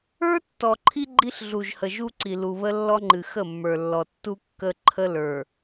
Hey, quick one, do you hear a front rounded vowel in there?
no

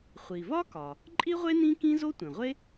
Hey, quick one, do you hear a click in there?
yes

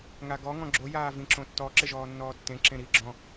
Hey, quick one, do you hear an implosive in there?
no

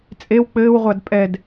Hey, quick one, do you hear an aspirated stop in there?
no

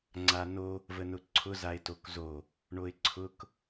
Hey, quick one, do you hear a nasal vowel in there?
no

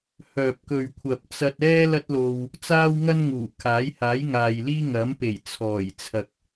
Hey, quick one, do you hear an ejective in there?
no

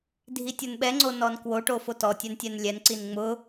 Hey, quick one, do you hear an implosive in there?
yes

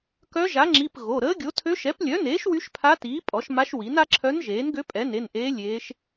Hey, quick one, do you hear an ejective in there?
yes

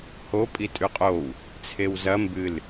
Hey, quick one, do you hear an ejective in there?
yes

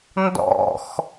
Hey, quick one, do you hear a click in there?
no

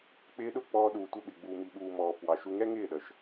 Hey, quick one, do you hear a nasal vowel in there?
no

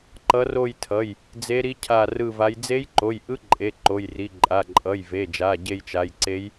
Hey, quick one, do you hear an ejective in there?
yes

